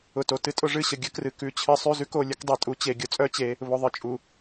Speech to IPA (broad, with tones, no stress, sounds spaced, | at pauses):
ʊ˨ t o˨ t ɨ˦ tʼ ʊ˦ ʐ ɨ˦˨ ɕ ə˨ ɡʲ ə˦ k r ɨ˨ k ʉ˦˨ t͡ɕʰ ɨ˦ sˤ ʉ˦ z ʉ˦ k o˨ lʲ ə˦ k dˤ e˨ tʼ u˨ t͡ɕ e˨ ɡʲ ʊ˨ t͡sʼ œ˦ t͡ɕ e˨˦ | β ʊ˨ ðˤ ɨ˨ t͡ʃʼ u˨